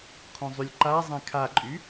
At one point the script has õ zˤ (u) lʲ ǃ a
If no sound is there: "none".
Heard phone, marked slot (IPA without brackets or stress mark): y